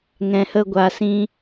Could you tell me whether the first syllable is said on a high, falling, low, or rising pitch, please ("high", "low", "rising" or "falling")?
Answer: low